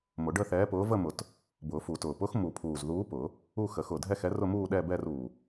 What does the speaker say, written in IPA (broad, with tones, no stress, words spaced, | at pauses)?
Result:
mʊ˨˩˦ɖəː˥˧θɛː˨˥pʊː˨˥ və˥˧ mʊ˨˩˦t | bʊː˨˩˦fu˨˩˦tʊː˨˩ pʊ˨˥x mu˨˩˦pʰuː˨˩z ðuː˨˥pʊ˨˩˦ | u˥˧xə˨˩˦xʊ˨˩ dʱɛ˥˧xɛ˨˥rʊ˥˧muː˥˧ ɗɛː˥˧bɛː˥˧r uː˨˩